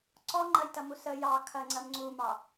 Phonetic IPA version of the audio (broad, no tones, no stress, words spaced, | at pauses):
ǀɔŋ͡ǃɐjtɐmu sə jɑ kʰɐŋ͡ǀɐm ŋ͡ǀumɑ